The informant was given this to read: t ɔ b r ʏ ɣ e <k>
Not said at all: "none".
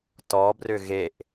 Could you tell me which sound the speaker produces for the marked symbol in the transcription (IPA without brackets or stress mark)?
ʔ